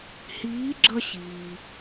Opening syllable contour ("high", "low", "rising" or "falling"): rising